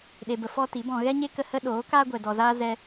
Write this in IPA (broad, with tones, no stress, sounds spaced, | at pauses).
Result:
ɗ e˨ b ə˨ f ɔ˦ t i˨˦ b ɔ̃˧ ɣ ɛ˦ ɲ e˦ k ə˧ h ə˦ ɗ oː˨˦ k aː˦ ɡʷ ɛ˨ d ɔ˨ z aː˦ z ɛ˦